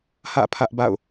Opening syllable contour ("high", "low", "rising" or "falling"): falling